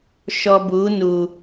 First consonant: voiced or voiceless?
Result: voiceless